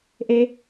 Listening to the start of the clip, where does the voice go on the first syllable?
high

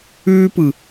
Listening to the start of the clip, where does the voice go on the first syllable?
high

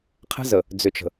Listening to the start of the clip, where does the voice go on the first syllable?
high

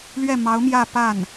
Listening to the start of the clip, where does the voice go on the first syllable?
falling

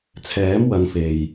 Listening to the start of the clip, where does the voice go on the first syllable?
rising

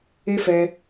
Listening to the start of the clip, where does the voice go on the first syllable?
high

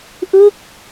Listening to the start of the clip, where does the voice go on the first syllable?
falling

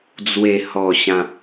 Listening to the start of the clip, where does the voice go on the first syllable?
low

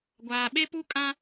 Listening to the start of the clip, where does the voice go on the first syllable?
low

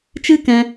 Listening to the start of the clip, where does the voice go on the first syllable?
high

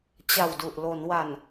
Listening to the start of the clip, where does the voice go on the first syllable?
low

